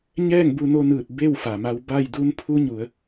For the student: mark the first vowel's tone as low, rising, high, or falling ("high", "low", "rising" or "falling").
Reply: falling